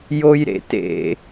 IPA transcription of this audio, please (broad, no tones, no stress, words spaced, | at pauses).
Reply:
jojɾḛtḛ